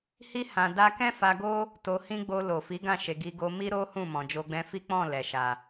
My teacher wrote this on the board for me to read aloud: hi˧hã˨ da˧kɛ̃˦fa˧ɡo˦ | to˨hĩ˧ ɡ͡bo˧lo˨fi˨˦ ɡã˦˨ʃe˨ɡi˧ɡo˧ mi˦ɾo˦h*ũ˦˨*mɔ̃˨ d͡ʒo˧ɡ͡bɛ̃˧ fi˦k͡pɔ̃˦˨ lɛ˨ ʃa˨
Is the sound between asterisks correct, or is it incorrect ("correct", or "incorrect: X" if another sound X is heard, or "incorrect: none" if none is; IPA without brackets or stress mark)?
correct